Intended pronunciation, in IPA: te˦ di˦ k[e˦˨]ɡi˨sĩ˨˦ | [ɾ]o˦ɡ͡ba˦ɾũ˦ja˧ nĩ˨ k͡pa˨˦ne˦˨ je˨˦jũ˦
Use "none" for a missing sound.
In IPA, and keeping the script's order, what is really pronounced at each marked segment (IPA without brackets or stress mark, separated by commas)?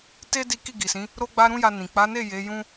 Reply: i˦˨, ɾ